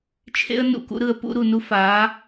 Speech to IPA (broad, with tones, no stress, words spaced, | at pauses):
t͡ʃʰḛ˦ə̯ nṵ˧kṵ˦ɾɯ˧ə̯ pṵ˧ɾu˨nu˧ faː˨˦